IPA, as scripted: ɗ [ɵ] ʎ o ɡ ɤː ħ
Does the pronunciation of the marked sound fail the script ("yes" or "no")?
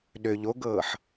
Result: yes